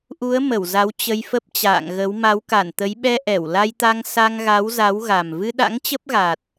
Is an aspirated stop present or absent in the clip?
absent